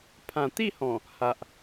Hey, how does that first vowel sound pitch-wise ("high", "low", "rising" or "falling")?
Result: low